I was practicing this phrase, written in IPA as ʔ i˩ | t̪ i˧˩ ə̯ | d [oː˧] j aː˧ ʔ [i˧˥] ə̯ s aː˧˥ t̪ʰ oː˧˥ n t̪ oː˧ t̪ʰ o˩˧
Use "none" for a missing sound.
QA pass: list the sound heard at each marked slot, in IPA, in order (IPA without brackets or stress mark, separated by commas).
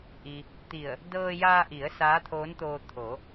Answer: ɤː˧, i˩˧